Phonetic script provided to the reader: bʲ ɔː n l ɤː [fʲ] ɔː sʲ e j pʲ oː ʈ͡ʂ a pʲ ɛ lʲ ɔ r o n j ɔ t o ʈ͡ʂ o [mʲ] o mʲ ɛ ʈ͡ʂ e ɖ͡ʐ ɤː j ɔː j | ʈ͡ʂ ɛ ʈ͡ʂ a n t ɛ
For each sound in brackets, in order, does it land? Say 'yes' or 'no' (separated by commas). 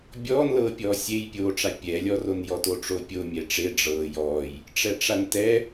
no, no